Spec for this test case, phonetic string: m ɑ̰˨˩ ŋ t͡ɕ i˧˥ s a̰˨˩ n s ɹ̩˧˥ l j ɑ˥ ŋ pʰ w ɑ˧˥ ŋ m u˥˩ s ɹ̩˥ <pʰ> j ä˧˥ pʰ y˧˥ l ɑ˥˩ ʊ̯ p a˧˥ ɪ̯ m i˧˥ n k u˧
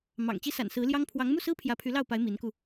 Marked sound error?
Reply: no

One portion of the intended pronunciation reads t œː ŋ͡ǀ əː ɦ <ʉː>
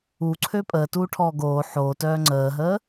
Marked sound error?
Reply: yes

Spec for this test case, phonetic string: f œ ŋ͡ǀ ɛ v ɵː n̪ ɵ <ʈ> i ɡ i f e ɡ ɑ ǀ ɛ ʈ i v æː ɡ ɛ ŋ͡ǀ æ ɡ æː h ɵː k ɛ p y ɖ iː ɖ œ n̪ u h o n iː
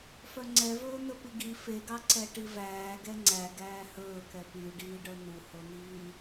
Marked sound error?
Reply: yes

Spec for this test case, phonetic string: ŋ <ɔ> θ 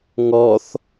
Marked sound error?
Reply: no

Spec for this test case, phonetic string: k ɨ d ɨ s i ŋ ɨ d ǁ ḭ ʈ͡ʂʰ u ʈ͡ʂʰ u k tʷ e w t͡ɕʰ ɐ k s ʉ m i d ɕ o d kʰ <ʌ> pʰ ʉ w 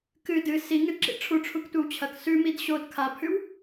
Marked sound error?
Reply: yes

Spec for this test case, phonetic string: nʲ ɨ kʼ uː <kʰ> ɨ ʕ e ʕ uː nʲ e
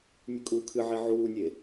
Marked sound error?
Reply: no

